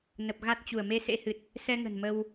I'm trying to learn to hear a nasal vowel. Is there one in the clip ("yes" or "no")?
no